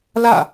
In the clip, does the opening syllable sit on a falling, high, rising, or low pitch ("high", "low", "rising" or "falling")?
falling